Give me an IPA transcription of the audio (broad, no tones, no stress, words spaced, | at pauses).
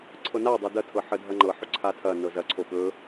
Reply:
ǀʰɤnadˤo dɐtʰɤ ħədʱɐŋ͡ǃɤħɵ ǀʰatʰɐnɤ zɐǀʰo ɓɵ